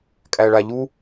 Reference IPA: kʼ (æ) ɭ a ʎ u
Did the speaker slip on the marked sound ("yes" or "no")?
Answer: no